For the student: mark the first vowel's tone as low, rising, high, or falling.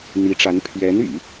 rising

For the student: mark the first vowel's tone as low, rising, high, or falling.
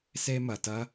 high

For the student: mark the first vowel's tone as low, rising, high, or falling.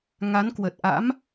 rising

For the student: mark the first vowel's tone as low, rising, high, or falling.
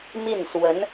falling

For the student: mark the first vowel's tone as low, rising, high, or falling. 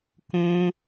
high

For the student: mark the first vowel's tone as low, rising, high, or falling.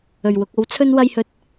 low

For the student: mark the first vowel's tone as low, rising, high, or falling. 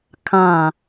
falling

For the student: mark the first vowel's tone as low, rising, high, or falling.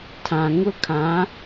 low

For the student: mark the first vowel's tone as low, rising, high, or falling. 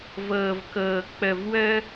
low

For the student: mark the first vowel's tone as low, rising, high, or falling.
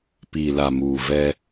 low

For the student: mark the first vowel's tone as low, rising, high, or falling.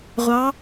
rising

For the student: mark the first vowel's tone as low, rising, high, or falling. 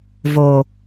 low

